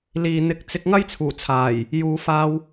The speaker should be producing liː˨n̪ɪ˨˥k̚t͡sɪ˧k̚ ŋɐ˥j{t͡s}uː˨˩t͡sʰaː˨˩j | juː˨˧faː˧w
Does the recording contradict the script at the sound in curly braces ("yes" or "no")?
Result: yes